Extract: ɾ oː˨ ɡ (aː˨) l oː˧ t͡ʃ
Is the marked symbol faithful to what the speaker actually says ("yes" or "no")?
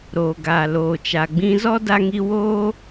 yes